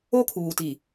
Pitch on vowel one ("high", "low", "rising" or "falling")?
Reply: high